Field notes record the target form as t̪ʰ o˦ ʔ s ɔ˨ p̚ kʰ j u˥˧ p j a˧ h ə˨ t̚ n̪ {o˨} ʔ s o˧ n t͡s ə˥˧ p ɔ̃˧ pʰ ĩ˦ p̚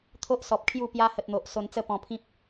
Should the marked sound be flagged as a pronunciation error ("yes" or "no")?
no